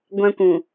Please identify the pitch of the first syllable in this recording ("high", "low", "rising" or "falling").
high